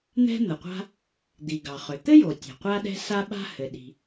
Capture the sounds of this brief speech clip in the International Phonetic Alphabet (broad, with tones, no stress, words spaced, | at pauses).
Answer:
n̪ɛ̤˥n̪ə˩qʷa̤˥ | d̪i˩ ɡɑ˩χʏ˩ t̪ɘ˥jo˩tʲa̤˩ qʷa˥ɗɛ̤˥ sa˥ɓa̤˥hɘ˩ɗi̤˩